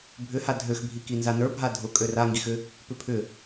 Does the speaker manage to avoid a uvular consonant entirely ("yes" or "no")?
yes